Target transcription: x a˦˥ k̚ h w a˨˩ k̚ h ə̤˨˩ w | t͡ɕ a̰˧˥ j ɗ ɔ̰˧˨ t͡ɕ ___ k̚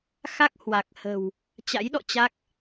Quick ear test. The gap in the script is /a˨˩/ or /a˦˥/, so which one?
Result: a˦˥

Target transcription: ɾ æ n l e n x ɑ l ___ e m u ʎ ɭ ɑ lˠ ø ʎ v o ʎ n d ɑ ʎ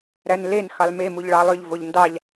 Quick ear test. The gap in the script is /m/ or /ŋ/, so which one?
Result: m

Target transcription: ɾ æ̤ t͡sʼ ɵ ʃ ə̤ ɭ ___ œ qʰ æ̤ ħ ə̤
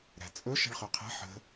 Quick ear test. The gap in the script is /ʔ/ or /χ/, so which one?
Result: χ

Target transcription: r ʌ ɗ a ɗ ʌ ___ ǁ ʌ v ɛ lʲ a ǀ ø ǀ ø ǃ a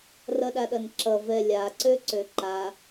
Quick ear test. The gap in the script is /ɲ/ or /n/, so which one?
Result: n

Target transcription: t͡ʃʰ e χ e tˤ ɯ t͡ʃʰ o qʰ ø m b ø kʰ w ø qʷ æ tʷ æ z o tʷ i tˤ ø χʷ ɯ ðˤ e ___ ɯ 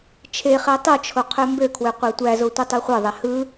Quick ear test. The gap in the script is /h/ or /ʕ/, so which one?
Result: h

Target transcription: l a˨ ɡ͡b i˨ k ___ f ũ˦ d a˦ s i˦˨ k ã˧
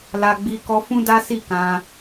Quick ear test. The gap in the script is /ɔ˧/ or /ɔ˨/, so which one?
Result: ɔ˧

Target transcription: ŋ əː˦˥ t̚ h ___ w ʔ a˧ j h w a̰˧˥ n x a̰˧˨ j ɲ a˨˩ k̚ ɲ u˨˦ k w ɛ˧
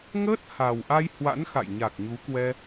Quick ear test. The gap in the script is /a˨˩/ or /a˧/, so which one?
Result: a˨˩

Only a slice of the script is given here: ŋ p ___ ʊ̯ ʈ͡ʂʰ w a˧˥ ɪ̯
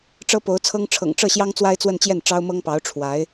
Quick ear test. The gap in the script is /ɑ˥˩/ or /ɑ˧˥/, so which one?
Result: ɑ˧˥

